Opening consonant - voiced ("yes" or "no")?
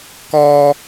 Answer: no